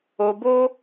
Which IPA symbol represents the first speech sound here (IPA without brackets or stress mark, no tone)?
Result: o